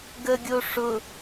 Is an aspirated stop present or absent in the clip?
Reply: absent